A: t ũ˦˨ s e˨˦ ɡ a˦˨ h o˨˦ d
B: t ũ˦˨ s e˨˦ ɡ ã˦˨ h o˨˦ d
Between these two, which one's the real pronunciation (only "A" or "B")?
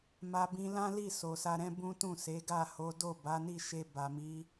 A